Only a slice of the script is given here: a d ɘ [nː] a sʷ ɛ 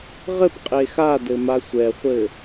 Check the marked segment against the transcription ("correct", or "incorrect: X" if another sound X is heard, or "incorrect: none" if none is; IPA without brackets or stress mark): incorrect: m